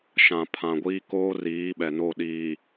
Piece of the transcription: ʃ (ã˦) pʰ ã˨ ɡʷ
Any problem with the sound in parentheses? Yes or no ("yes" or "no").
yes